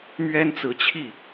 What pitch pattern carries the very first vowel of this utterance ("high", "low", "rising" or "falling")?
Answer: high